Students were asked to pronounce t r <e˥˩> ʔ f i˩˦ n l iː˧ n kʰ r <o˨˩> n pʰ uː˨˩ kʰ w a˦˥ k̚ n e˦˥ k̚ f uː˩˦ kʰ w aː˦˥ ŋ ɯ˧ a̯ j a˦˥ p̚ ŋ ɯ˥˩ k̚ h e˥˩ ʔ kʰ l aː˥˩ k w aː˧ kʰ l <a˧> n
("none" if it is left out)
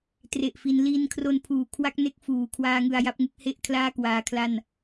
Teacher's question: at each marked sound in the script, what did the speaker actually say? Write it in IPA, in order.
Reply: e˨˩, o˧, a˥˩

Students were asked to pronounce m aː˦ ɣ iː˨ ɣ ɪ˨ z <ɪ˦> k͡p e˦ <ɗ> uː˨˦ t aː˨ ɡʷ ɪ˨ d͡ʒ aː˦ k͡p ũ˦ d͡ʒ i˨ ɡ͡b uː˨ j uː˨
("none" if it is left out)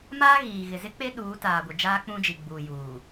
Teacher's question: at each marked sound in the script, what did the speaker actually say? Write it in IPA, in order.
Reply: ɪ˦, ɗ

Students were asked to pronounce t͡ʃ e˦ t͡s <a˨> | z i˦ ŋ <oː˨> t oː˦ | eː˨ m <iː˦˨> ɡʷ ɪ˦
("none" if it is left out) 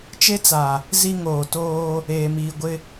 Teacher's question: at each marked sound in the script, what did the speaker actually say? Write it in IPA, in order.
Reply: a˨, oː˨, iː˨

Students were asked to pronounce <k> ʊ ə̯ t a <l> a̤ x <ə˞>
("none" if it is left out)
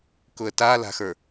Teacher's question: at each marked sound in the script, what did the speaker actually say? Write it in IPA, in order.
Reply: k, l, ə˞

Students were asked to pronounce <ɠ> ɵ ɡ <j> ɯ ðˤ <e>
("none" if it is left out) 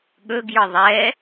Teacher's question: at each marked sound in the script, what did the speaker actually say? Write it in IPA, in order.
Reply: ɠ, j, ɛ

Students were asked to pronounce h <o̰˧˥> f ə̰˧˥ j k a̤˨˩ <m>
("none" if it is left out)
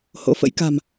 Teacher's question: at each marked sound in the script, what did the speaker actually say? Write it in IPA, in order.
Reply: o̰˧˥, m

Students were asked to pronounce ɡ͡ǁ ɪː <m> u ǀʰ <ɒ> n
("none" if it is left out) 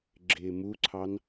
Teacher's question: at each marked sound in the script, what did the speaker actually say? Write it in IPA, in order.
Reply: m, ɑ

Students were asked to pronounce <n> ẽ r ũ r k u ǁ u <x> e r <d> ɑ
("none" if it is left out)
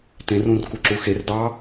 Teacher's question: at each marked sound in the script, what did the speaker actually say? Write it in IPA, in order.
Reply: t, x, d

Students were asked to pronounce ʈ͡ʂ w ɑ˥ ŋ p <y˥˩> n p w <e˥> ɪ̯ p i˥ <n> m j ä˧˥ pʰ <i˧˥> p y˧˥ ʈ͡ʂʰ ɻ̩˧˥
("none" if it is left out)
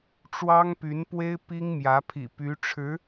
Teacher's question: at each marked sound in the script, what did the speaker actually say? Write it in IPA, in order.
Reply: y˧˥, e˥, ŋ, ḭ˨˩

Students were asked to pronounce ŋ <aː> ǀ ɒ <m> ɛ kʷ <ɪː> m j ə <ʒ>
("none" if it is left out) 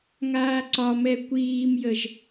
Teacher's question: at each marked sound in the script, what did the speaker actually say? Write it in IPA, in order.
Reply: aː, m, iː, ʒ

